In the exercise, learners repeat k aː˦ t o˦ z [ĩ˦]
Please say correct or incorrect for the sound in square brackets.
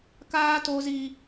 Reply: incorrect